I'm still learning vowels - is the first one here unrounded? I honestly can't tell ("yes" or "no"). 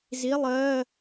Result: yes